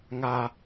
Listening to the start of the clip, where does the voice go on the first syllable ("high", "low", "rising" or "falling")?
low